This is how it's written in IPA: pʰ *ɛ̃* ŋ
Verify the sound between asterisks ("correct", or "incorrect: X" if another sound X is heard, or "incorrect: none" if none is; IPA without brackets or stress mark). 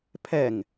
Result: incorrect: ɛ